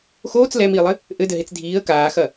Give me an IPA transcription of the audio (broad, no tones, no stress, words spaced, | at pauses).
xoːt͡s lɛmiːlˠɘ | ʔɘdɘɦet͡s dʱiːə̯ kaːxɐ